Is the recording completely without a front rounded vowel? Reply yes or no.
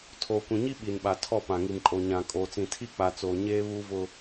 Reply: yes